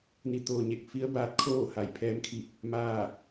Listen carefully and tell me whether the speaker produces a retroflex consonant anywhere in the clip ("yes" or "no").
no